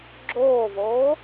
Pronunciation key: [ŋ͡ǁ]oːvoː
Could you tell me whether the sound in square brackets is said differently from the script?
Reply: yes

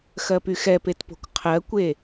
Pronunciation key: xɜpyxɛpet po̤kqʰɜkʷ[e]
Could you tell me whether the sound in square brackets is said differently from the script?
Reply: no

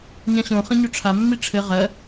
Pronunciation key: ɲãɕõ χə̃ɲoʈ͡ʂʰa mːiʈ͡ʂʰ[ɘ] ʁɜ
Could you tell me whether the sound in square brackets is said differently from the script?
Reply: no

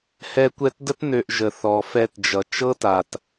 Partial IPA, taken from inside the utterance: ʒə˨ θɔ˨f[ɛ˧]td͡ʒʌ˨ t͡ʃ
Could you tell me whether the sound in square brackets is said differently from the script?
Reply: no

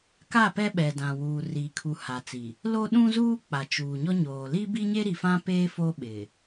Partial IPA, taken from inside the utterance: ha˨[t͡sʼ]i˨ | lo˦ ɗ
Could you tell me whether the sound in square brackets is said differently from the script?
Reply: yes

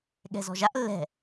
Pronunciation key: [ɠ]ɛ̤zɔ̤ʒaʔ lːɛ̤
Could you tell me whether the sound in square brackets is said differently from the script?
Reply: no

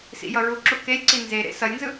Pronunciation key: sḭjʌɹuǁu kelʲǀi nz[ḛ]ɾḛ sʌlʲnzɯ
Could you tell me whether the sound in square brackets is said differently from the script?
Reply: yes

